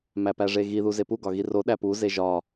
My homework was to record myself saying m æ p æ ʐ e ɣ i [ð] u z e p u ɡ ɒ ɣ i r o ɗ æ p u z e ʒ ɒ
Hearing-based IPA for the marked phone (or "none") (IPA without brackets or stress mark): ð